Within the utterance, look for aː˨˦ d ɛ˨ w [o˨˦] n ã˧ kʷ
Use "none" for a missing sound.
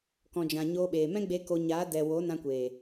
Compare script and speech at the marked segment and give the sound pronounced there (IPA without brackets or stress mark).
o˨˦